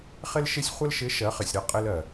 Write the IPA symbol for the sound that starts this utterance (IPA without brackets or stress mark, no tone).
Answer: χ